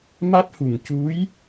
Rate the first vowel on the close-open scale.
open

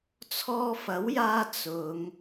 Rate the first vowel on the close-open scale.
mid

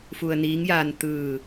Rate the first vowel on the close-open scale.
close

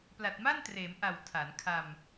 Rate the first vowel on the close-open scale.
open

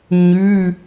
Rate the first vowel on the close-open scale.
close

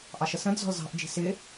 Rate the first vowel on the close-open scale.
open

